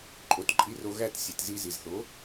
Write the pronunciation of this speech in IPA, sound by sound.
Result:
ǃʼ o˨˦ t ǃʼ i˧ r o˧ ɣ æ˦˨ t sʲ e˨ t z i˧ z i˨ z θ o˨˦

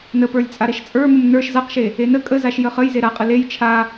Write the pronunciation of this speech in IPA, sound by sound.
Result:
n ə p ə˞ lʲ t͡sʼ a ɾ e ʃ t͡sʼ ə˞ m ə m n ə˞ ʃ z a q ʃ e | e n ə kʼ ə z a ʃ j ə χ ə j z e ɾ a qʼ ə l e j t͡ʃʰ a

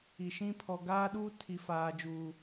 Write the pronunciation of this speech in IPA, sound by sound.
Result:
i˨ ʃ ĩ˦ pʰ ɔ˨ ɡ aː˦ ɗ uː˦ tʰ i˨ f aː˨ d͡ʒ uː˨

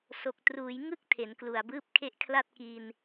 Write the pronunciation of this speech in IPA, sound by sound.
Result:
s o˨˩ k̚ t r uː˩˦ j ŋ ɯ˥˩ k̚ tʰ e˩˦ n k l u˨˩ a̯ b ɯː˥˩ p̚ kʰ e˥˩ ʔ kʰ l a˥˩ t̚ k i˧ n

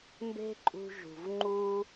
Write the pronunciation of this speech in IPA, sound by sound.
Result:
m b e̤˦ ǃʼ ṳ˧ ʒ ṳ˨ v ŋ͡ǃ u˧

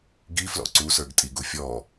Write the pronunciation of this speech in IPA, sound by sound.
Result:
ɡ i f l ɔ̰ ǀ u s ə˞ ɡ tʼ i ɡ u fʲ ɔ

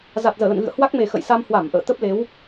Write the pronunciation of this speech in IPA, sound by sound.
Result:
z a˨˩ t̚ z əː˧˩ l ə̰˧˨ n ɣ ɨ̰˧˨ ə̯ h w a˦˥ k̚ m e˨˩ x ə̰˧˨ j s a˧ m h w a˧˩ m ʔ ə̰ː˧˨ t̪ ə˦˥ p̚ l e˨˦ w

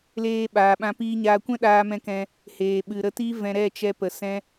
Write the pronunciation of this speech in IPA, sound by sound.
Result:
l eː˧ ɓ aː˨ ɓ ã˧ p iː˧ ɲ aː˧ kʷ ɛ̃˦ ɗ aː˧ m ɛ̃˧ k ɛ̃˧ | h eː˨ ɓ ɨ˨ ɾ ə˧ t i˦ v ɛ̃˧ ɾ ɛ˦˨ t͡ʃ ɛ˧ p ə˨ s ɛ̃˧

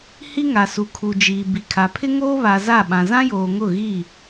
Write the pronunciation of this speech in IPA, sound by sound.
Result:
h i˦ ŋ a˨ s u˨ kʰ u˨ d͡ʒ iː˨ b i˨ kʰ a˨ pʰ ɪ˦ ŋ oː˦ β a˨ z a˦˨ ɓ ã˨ z ã˦ j oː˨ ŋ ʊ˦˨ ɣ i˦˨

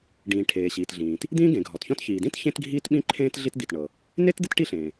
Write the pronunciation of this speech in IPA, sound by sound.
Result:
ɖ ĩː˩ ʈʰ eː˩ ɕ iː˩ t ɮ ĩː˩ t | d̪ ĩː˥ ɡ ẽ˩ ɡʱ ɔ˩ t ç ɔ̃˥ t ç iː˩ d ĩ˥ t ç ẽ˥ t ɡʱ iː˥ t ɓ ĩ˥ ǃʰ ẽː˥ t ɮ i˥ t d̪ i˩ t ɳ ɤ˩ | n e˥ t d̪ ɪ˥ t ʈ i˥ ɬ ẽː˩

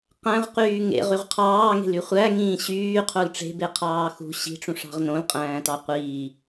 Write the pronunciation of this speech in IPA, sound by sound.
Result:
q æ̃ ʁ q yː ŋ ḛ ʁ y ʁ qʰ ɑː ŋ e̤ l y χʷ æ ŋ ĩː ɕ yː qʰ o l ʈ͡ʂ e̤ b e qʰ ɑː x ṳ ɕ i̤ ʈ͡ʂ ũ ʂ ɑ̤ ʁ n õ l qʼ æ̃ː t ɑ qʷ iː

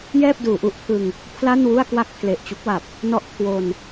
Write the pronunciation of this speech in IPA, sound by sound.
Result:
j ɛː˥˩ p̚ d uː˩˦ ʔ u˦˥ ʔ pʰ ɯ˧ ŋ | pʰ l a˥˩ n w u˥˩ a̯ k w a˥˩ k̚ pʰ l e˨˩ ʔ t͡ɕ u˦˥ k̚ w a˨˩ p̚ | n ɔ˥˩ ʔ kʰ w o˧ n

